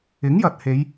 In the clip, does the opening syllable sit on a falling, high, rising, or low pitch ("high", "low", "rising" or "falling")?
rising